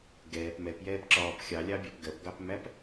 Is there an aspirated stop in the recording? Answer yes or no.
no